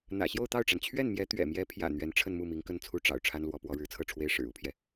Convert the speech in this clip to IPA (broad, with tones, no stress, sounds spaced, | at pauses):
n̪ ä̰˨˩ ɕ j o˥˧ ʊ̯ t̪ ɑ˥˩ ʊ̯ ʈ͡ʂ a˩ n t͡ɕʰ ɥ ɛ˥˩ n m j ɛ˧˥ t̪ ɥ ɛ̰˨˩ m j ɛ˧˥ pʰ j ä̰˨˩ n̪ ɥ ɛ˧˥ n ʈ͡ʂʰ ə˥˧ n m u˥˩ m i˧˥ ŋ k ə˥˩ n t͡sʰ u˥ ʈ͡ʂ ɑ̰˨˩ ʊ̯ ʈ͡ʂʰ a˥ n l w ɔ˧˥ p w ɔ˧˥ ɻ ɻ̩˧˥ t͡sʰ ɤ˥˩ ʈ͡ʂʰ w e˥ ɪ̯ ʂ ɻ̩˨˩ u˥ pʰ j ɛ˨